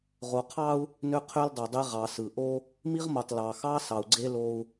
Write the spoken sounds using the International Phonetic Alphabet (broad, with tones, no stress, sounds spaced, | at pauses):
ʁ o˨ qʰ ɑ˦ u̯ | n ø˦ qʰ ø˦ l dˤ ø˨ dˤ e˦ ʁ ɑ˨ s ɯ˨ ʔ o˦ | m i˦ ʁ m o˨ tˤ l ɑ˨ x ɑ˦ s ɑ˨ u̯ ɡ͡ǀ e˦ l o˦ u̯